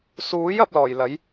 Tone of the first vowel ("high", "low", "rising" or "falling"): rising